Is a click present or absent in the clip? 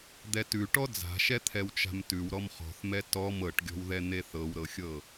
absent